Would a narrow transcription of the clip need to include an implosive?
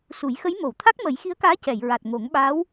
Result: yes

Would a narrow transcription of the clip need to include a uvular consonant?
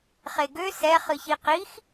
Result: yes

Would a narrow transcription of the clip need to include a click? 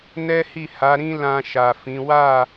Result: no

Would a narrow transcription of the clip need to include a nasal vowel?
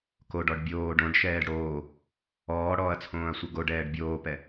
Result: yes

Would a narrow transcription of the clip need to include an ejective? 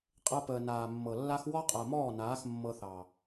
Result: yes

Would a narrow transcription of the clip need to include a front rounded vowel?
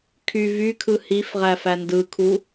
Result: yes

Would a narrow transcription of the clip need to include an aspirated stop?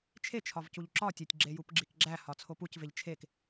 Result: yes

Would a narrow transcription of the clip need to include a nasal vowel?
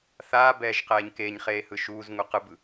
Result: no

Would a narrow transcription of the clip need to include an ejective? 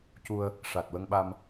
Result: no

